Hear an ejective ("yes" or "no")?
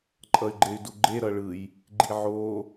yes